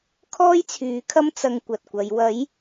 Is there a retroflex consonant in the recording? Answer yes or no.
no